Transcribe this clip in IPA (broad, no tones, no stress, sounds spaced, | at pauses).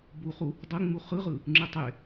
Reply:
b u χ u | dˤ ɯ ŋ͡m u χ ɯ ʁ ɯ | ŋ͡ǁ ɯ tˤ e